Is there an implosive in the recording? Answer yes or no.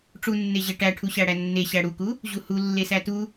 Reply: no